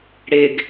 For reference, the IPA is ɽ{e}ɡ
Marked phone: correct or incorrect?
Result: correct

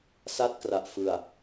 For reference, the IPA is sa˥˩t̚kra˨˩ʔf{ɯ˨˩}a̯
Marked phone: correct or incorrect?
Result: correct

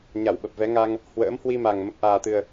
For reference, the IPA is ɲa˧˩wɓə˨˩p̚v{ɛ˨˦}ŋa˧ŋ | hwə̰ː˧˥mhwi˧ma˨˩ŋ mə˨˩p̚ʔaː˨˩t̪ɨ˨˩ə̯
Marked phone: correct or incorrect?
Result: correct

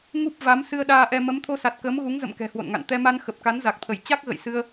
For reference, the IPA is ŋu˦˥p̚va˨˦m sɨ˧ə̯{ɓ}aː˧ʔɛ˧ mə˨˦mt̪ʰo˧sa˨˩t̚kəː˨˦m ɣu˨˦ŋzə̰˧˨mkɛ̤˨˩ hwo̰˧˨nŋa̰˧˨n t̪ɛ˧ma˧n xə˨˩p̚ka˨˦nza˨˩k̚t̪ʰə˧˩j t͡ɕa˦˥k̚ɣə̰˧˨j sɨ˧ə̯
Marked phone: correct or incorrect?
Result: incorrect: ɗ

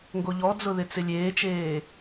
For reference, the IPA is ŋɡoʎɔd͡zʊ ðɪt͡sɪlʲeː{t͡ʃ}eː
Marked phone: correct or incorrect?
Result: correct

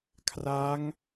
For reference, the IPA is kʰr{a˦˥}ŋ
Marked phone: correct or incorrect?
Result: correct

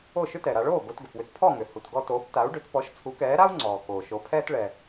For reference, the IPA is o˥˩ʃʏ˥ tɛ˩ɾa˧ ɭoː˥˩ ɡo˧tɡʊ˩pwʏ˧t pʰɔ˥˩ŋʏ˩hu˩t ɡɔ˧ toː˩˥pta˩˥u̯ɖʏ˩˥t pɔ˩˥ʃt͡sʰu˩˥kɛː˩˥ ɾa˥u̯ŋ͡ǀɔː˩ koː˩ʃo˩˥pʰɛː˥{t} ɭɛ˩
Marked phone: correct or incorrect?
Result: correct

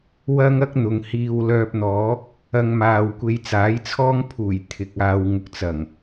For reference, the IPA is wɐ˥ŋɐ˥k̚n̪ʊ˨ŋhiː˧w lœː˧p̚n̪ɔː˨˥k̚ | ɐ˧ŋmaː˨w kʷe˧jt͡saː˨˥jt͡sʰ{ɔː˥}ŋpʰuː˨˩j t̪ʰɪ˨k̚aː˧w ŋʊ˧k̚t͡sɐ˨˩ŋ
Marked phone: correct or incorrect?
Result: correct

